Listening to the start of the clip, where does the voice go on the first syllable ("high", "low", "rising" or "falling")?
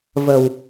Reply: low